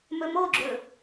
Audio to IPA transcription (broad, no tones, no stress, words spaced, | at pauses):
mɵmoɡ͡ǁɵ